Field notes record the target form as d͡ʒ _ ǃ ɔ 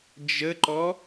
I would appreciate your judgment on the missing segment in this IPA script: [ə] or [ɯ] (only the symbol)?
ə